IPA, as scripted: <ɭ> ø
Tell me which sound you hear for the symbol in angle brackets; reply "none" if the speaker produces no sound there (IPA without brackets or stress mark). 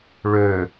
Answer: ɭ